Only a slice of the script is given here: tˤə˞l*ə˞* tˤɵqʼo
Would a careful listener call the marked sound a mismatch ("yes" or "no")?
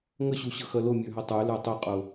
no